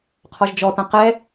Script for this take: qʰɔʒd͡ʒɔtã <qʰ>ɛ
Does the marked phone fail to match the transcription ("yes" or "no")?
yes